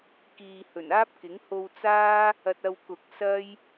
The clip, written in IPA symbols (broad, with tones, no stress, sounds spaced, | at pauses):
k iː˨ h ɵ˨˩ n aː˥ p̚ k ɪ˨˥ ŋ h o˧ w t͡s aː˥ | ɐ˧ t̚ ɐ˧ w k ʊ˨ k̚ s ɐ˥ j